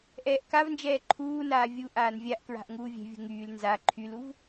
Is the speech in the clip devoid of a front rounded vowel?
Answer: no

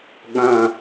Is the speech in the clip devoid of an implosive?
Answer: no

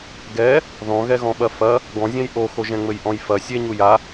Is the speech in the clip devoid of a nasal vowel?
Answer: no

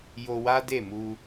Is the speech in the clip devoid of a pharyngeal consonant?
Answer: yes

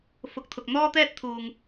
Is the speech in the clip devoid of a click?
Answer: yes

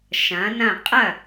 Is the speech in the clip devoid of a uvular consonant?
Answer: no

